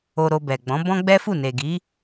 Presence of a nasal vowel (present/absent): present